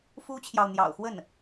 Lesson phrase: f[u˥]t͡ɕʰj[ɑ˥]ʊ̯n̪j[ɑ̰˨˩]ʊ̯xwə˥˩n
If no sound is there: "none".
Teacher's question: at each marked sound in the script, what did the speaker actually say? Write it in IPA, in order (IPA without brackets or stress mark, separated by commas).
u˥, ɑ˨, ɑ̰˨˩